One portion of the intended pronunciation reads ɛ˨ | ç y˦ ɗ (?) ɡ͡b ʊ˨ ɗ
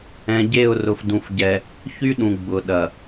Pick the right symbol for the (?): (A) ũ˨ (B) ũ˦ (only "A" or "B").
A